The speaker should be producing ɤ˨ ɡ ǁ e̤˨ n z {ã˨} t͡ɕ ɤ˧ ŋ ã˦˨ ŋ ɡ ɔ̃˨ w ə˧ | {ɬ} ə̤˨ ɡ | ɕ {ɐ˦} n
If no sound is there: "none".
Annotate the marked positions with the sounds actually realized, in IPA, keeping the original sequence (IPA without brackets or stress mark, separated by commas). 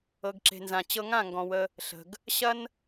ã˨, ɬ, ɐ˦